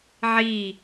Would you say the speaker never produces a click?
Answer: yes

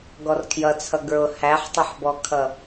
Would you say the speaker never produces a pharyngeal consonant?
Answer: no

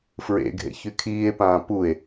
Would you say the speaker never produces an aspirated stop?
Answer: no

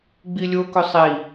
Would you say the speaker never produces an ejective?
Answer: yes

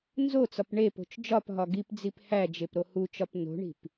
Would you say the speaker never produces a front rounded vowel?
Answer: yes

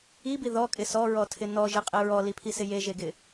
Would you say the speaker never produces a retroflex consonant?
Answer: yes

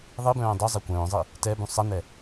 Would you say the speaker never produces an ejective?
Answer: yes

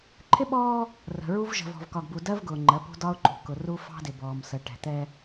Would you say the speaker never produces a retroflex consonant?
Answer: no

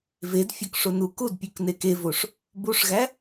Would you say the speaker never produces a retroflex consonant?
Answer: no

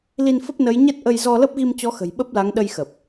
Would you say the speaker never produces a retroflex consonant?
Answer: yes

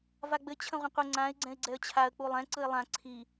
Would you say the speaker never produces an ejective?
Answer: yes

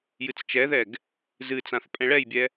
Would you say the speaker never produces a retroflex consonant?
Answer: no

